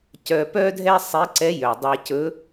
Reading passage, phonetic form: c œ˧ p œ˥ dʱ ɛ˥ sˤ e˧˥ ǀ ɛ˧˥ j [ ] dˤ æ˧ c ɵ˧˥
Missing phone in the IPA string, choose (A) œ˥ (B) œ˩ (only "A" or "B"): B